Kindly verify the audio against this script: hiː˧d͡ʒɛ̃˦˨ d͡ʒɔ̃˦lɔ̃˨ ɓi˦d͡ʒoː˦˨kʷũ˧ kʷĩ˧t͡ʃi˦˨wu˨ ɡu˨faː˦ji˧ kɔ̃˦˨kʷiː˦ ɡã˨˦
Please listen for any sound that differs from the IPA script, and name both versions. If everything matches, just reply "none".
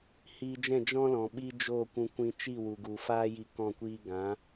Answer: none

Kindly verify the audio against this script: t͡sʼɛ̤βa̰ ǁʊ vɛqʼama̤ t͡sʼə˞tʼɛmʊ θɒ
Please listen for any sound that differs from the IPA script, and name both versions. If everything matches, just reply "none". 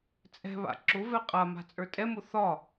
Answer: none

